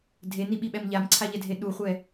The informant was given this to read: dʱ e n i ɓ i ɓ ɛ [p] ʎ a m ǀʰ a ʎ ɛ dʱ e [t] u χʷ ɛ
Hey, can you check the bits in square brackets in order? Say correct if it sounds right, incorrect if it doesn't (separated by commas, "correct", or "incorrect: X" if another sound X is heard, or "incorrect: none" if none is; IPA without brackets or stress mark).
incorrect: m, incorrect: ɗ